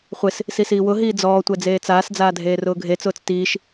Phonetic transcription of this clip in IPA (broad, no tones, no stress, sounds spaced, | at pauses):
χʷ ɪ s | s i s iː w ʊ ɦ iː d͡z ɔː tʷ ɛ d͡z eː t͡s aː s d͡z aː dʱ eː r ʊː ɡʱ e t͡s ʊː t͡s t iː ʃ